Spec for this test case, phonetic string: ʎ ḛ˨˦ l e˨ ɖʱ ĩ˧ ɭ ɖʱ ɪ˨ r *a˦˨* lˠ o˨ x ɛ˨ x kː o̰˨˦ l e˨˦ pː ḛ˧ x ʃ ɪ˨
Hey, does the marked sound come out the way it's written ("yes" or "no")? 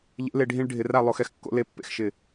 yes